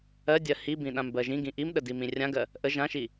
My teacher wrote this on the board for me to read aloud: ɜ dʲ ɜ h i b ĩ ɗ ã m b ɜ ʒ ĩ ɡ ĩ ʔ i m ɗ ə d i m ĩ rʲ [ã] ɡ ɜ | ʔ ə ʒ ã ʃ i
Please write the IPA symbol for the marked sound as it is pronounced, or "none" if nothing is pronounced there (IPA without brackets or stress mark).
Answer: ã